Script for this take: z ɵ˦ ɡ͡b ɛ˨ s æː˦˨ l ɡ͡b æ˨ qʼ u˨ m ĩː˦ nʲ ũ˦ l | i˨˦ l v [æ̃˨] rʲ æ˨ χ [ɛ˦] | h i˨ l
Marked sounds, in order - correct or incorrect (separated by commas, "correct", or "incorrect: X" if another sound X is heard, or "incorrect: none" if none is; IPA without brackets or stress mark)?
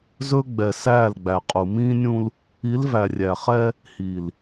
incorrect: æ˨, correct